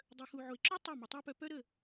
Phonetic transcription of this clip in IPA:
dˤ œ˨ x u˨ ʕ o˨ e̯ ǁ o˦ tˤ œ˦˨ m ə˨ tˤ a˦ p œ˧ p œ˦ ɾ ə˦˨

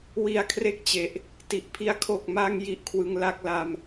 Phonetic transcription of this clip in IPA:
w i˧ a̯ kʰ r e˦˥ k̚ t͡ɕ e˨˩ ʔ | t i˨˩ ʔ pʰ i˧ a̯ kʰ o˨˩ k̚ m a˧ ŋ j i˦˥ ʔ kʰ w ɯ˧ ŋ l a˥˩ k̚ l a˧ m

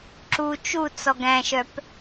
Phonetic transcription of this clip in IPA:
ǁ u t͡ʃ u t͡s ɔ ɡ æ̃ ʃ œ p

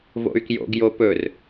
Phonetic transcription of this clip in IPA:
v o̰ y̯ k j o̰ ɡ j o p ɵ r

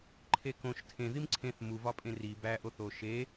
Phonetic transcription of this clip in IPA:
ǃʰ e k õ ʃ tʰ ẽ ð i m ǀʰ ẽ θ m u v ɒ pʼ ẽ r i b æ ʔ o θ o ʃ e

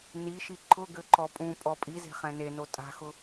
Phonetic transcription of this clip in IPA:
n i ʃ i ǃʰ ʊ ɡ ø ǃ ɔ pʼ ũ pʼ ɔ pʼ i z e̤ χ ɛ̃ n e n o tʼ a̤ x ʊ

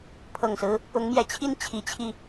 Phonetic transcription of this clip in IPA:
pʰ ɤ˨˩ ŋ s ɹ̩˦ | ʊ˨˦ ŋ m j ɛ˨˩ t͡ɕʰ i˦ n t͡ɕʰ i˨˦ t͡ɕʰ i˧

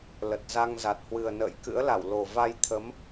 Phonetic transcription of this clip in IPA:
l ə˨˩ t̚ z a˧ ŋ z a˨˩ t̚ h w ɨ˨˩ ə̯ n ə̰ː˧˨ j k ɨ̰˧˥ ə̯ l a˧˩ w l o˨˩ v a˧ j t̪ʰ ə˨˦ m

